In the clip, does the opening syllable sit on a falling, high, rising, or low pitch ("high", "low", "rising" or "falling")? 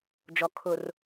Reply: low